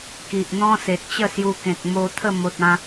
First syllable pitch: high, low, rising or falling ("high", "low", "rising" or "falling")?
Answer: low